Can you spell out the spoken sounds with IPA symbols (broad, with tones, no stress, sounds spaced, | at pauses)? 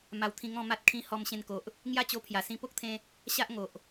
m a˧ w t̪ʰ ĩ˧ ŋ ɔ̃˥˧ m a˦ t̚ kʰ ĩ˧ h ɔ˧ m ɕ ẽ˧ n k o˨ ʔ | ŋ j a˥˧ t͡ɕ o˧ pʰ j a˨˩ s ĩ˧ p o˦ k̚ t̪ʰ ẽ˧ | ɕ a˦ ʔ ŋ o˨ ʔ